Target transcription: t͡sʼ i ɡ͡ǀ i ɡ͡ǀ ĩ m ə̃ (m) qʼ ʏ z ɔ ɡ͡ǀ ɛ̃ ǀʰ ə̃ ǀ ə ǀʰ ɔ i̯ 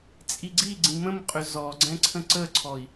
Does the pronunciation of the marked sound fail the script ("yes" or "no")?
no